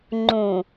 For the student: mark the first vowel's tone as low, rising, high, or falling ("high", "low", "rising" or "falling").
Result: low